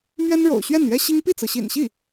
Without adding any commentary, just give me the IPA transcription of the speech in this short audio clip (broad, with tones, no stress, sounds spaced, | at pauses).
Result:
m ɥ ɛ˥ n ɻ o̰˨˩ ʊ̯ ɕ ɥ ɛ˥˩ n ɥ ɛ˥ ɕ i˥ ŋ p i˥˩ t͡s ɹ̩˩ ɕ ḭ˨˩ n ɕ i˥˩